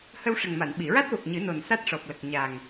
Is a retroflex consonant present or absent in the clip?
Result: present